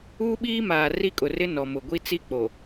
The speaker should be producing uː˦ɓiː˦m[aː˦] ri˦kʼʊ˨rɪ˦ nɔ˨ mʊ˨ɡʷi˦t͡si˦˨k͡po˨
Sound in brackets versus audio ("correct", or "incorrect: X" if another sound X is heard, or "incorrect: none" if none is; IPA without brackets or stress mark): incorrect: aː˨